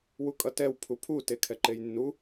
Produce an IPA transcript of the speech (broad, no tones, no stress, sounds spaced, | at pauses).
w u kʼ ʌ t ɛ w pʰ u pʰ u t e kʰ ɛ ǃ e j nː u